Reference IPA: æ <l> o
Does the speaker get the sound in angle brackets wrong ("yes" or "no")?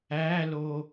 no